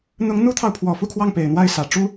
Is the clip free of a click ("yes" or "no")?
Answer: yes